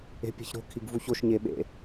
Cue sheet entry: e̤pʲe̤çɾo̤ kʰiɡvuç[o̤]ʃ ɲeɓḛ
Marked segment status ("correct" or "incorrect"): incorrect